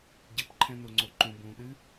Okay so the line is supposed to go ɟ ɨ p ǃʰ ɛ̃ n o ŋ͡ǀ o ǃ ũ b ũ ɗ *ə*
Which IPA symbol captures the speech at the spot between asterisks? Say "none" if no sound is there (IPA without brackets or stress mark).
ɨ